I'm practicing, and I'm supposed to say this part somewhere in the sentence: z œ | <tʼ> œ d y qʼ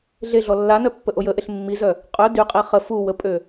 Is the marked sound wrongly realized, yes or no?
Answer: yes